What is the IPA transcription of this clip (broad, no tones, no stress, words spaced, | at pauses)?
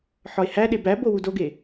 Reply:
ħɒe̯hæɗe bæbo wudoɡe